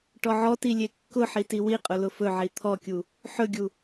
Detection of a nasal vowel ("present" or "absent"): absent